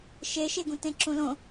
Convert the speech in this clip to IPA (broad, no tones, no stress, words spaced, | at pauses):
ʃeʃeɡũtẽ ǁũlõ